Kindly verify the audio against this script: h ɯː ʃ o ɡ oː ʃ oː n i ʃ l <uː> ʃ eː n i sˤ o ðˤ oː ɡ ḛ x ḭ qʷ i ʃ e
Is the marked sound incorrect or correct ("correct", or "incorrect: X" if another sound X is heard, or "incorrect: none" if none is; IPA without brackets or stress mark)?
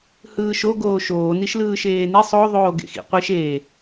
incorrect: ɯː